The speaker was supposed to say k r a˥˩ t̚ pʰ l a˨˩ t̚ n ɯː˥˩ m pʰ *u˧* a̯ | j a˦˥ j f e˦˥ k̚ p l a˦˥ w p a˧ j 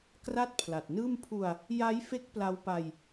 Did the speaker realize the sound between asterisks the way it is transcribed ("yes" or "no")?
yes